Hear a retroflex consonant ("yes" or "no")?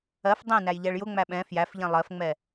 yes